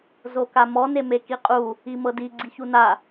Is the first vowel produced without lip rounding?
no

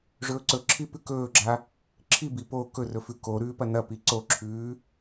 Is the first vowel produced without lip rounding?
no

